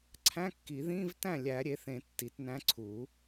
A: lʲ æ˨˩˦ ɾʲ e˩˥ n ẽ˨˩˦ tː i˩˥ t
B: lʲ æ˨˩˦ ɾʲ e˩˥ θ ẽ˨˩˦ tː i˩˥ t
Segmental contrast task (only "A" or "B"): B